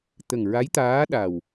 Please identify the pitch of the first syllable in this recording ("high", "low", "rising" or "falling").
low